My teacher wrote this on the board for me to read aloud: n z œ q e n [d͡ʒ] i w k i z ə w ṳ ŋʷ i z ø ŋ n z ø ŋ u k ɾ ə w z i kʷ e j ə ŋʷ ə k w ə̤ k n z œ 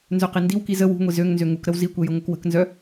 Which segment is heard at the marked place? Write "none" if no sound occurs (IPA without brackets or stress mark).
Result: d